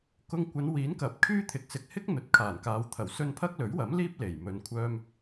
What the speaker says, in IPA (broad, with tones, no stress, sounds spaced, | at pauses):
k ʊ˧ ŋ kʷ ɐ˨˧ n w iː˨˥ n k ɐ˨˥ p̚ kʰ yː˥ t̪ʰ ɪ˨˥ k̚ s ɪ˨˥ k̚ h ɪ˥ k̚ n̪ ɵ˨˥ t̚ kʰ aː˨˩ n k aː˨˧ w t̪ʰ ɐ˨˩ w s ɵ˧ n pʰ ɐ˥ k̚ l ɵ˨˥ ɥ w ɐ˨˥ m l iː˥ p̚ l e˨˩ j m ɵ˨˧ n kʷʰ œː˧ m